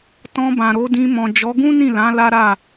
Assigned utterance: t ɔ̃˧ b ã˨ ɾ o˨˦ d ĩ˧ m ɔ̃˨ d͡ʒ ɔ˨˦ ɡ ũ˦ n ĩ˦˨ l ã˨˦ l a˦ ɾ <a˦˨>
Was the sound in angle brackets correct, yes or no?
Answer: yes